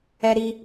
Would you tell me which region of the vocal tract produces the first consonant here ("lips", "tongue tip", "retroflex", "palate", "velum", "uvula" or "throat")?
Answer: tongue tip